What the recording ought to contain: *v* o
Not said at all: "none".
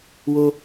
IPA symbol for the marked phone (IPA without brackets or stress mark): w